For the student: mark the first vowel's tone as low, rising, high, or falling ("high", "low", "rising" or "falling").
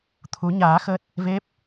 rising